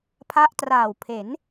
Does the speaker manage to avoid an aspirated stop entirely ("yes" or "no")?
no